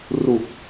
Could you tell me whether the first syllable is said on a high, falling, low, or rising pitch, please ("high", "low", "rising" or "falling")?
low